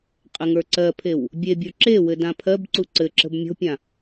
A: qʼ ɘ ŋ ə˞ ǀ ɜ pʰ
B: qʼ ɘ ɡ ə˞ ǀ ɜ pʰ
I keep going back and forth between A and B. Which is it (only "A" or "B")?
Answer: A